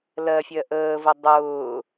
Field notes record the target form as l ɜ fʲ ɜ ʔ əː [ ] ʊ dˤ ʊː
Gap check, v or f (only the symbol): v